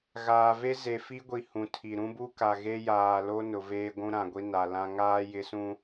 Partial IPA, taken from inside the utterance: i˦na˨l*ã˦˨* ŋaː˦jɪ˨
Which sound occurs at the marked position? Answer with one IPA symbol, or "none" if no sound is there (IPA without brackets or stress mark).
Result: ã˦